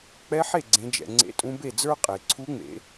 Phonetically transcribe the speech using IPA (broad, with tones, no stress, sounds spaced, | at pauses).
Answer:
k͡p ɛ˧˥ ħ e˥˩ ɡ͡ǀ ẽ˩˧ d͡ʒ ɛ̰˩ ŋ͡ǀ ḛ˧˥ tʼ ũ˧˥ b e˥˩ d͡z ə˞˥ qʼ e˩ ǀʰ u˧˥ ŋ͡m ḛ˩˧